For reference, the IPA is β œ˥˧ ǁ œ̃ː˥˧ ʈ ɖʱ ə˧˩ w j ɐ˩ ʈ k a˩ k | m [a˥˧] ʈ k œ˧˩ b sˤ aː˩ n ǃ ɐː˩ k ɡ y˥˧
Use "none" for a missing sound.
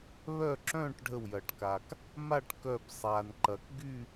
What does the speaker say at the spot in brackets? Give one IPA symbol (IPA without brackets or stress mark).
a˥˧